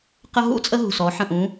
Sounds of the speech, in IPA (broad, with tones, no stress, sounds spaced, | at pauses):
q ə˦ ɦ ṵ˦ t͡sʼ ə˦ ɦ ṳ˨ s ɔ˨˦ ħ ə̃˨ ʔ ũ˨˦